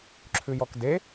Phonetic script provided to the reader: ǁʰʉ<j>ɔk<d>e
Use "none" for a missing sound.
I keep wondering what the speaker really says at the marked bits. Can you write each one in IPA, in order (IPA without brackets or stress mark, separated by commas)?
j, d